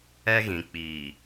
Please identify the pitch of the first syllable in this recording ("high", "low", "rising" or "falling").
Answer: high